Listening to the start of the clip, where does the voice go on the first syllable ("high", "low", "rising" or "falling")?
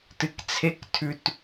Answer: low